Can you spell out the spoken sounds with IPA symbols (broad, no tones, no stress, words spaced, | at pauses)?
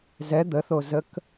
zɛ d̪əθo zək